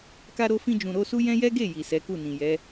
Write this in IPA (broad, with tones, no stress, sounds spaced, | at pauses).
k a˧ ɾ o˧ f ĩ˧ d͡ʒ ũ˨ ɾ o˧ s u˦ j ɛ̃˦ j ɛ˦ ɡ e˦˨ j i˨ s ɛ˨˦ k u˦˨ n ĩ˨ j ɛ˨˦